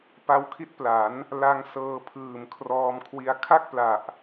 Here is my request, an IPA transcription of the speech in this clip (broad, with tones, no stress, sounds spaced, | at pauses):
p a˦˥ w kʰ i˦˥ t̚ p l a˩˦ n | l a˧ ŋ s ɤː˧ pʰ ɯː˨˩ m kʰ r ɔː˧ m kʰ w i˧ a̯ kʰ a˥˩ k̚ p l a˨˩ ʔ